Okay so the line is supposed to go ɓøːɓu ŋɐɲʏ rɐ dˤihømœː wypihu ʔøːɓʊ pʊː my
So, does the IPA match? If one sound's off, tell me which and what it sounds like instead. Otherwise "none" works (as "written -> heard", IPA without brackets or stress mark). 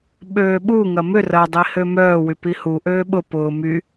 ɲ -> m